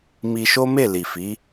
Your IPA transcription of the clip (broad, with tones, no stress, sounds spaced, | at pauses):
m i˧ ʃ o˦ m e˦˨ l i˨ f i˨˦